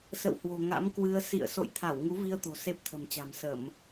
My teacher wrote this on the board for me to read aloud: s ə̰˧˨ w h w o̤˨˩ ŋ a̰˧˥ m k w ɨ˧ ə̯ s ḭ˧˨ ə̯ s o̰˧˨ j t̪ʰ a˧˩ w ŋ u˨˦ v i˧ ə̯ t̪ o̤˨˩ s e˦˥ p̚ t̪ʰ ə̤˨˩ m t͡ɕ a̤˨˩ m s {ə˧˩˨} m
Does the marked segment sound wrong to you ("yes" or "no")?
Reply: no